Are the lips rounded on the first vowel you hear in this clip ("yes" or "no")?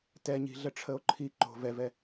no